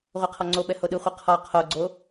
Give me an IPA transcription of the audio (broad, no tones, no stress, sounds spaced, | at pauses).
ʁʷ ɛ qʰ ɔ ŋ͡ǀ o ɓ ɛ h o ɗ ɯ χʷ ɯ qʰ ɔ qʰ o ɡ͡ǀ o